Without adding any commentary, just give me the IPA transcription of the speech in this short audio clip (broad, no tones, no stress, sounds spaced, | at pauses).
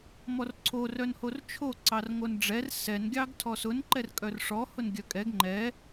m ɔ r ǀʰ o r œ n h o r t͡ʃʰ o ǀ ɑ r ŋ o n ɖ͡ʐ ɛ r s ɛ n ɡʲ ɑ ɡ tʰ ɔ s ʊ n ǃ ɛ r kʼ œ r ʂ ɔ h ʊ n ɡʲ œ kʼ ɛ ɡ ŋ͡ǃ ɛ